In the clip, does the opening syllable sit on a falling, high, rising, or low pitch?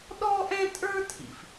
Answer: high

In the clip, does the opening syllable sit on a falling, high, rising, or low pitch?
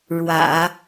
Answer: low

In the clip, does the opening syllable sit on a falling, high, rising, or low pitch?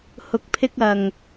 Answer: low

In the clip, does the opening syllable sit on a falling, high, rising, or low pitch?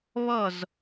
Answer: falling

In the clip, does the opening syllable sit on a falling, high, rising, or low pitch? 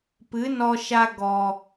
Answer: rising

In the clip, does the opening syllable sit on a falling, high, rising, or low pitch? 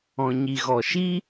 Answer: low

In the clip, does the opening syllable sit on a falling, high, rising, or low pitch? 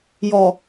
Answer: low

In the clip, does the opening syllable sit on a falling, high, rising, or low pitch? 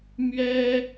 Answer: high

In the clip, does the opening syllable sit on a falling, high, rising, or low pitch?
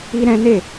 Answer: high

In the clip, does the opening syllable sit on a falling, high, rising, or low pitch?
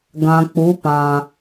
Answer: low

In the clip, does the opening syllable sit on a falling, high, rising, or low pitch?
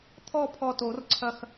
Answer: falling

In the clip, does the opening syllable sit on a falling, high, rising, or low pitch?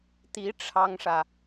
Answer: rising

